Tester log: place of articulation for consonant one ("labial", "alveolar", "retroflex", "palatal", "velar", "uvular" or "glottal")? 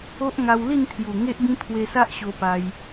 glottal